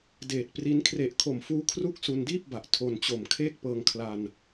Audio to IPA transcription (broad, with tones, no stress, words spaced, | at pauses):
deː˨˩t̚pri˦˥n kʰre˨˩ʔkʰo˨˩mfuː˦˥ kʰru˥˩k̚ su˧ndiː˥˩p̚ba˨˩ʔ tʰo˧nt͡ɕo˨˩m kʰeː˥˩k̚pɤː˧ŋkʰla˧n